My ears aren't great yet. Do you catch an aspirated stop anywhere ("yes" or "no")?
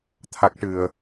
yes